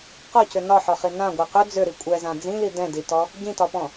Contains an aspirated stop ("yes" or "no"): no